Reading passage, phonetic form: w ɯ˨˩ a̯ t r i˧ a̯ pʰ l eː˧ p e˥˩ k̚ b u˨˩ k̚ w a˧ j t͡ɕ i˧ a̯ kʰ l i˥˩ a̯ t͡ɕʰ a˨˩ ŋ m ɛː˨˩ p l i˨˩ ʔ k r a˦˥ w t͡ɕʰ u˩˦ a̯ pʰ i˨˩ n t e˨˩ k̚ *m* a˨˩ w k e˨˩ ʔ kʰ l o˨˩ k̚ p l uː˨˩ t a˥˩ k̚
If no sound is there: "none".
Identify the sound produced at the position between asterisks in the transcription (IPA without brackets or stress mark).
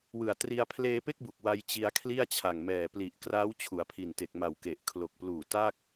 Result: m